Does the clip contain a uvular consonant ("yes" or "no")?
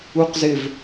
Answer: yes